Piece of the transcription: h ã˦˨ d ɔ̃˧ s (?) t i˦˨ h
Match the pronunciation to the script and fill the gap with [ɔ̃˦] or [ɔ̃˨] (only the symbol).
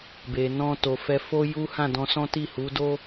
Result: ɔ̃˦